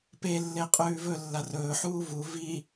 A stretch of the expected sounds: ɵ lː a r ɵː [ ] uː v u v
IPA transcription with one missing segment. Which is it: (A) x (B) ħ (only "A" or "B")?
B